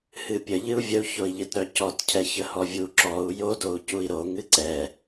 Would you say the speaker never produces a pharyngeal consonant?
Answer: yes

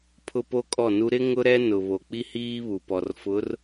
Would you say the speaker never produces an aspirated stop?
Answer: no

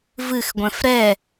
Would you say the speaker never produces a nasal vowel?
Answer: no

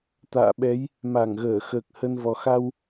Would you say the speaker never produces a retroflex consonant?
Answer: yes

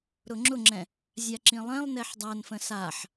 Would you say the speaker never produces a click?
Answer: no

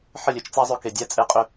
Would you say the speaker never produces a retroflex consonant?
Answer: yes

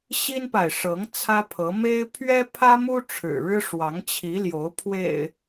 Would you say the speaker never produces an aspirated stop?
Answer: no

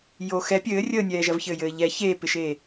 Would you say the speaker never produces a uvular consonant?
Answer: yes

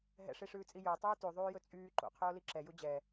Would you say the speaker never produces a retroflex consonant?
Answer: no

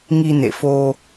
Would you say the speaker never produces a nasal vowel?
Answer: yes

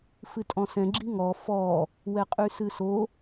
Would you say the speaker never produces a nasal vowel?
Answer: no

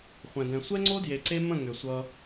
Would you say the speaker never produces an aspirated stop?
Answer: yes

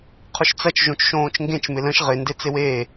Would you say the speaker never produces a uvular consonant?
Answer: no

